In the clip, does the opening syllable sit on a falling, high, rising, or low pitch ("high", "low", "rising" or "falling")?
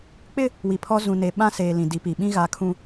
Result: high